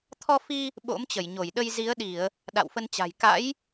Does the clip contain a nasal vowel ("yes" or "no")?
no